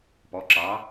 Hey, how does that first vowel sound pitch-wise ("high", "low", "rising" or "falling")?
rising